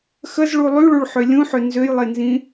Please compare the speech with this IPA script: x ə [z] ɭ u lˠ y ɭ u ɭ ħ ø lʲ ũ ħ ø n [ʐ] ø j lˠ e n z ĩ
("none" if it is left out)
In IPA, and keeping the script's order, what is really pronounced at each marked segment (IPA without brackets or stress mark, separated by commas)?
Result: z, z